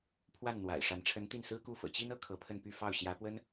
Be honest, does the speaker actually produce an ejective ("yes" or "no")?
no